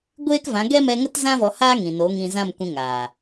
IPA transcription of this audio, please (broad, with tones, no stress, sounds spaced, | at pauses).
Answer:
ɡʷ eː˦ k v ã˨˦ ɡ ɛ˦ m ɛ˧ ŋ ə˦ t z ã˦ v ɔ˧ h a˦ ŋ ĩ˨ n o˨˦ ŋ ĩ˧ z ã˦˨ m kʷ ĩ˧ ŋ aː˨